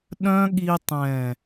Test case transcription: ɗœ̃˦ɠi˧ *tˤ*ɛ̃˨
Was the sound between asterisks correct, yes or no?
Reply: yes